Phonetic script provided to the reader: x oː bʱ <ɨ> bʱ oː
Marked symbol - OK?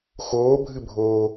yes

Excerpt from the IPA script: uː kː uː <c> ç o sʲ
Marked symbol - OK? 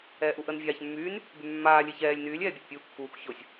no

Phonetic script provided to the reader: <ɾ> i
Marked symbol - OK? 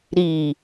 yes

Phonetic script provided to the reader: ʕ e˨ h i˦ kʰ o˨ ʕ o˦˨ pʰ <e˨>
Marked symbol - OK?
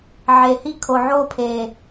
yes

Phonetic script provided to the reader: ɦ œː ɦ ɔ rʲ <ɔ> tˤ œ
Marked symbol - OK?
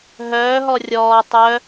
no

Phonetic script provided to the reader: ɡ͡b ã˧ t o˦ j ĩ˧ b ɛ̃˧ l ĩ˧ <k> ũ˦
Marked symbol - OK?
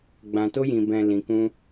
yes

